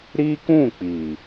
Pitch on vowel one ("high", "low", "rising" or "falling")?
high